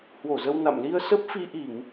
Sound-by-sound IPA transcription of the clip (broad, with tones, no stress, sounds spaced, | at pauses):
h w o˧˩ z ə˧ w n a̰˧˨ m l i˧ ə̯ s ə˦˥ p̚ f i˧ ʔ i˧˩˨ ŋ